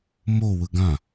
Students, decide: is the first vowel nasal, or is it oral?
oral